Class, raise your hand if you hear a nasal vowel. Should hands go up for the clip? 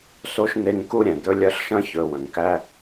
yes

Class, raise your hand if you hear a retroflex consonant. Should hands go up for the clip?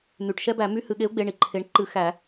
yes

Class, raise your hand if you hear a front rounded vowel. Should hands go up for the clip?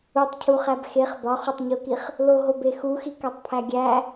no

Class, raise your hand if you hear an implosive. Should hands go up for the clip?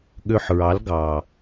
yes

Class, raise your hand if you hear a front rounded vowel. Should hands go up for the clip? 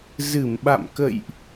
no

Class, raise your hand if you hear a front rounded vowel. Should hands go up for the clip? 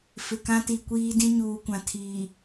no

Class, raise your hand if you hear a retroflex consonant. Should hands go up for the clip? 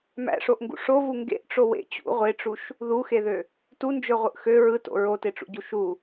yes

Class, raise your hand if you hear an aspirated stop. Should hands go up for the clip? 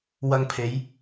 yes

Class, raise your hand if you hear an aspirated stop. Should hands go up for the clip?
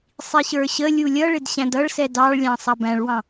no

